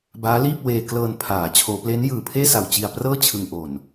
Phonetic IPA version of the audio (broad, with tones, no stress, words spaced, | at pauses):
baː˦˥liː˥˩p̚ weː˧klɤː˧n pʰaː˩˦ t͡ɕʰoː˩˦ple˦˥n jɯː˨˩pʰeː˥˩sa˨˩w t͡ɕi˧a̯prɤː˥˩ t͡ɕʰɯ˧ŋʔo˨˩n